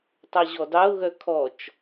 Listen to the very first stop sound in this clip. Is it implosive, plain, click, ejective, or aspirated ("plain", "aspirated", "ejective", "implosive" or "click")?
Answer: plain